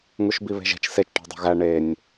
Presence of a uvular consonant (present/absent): absent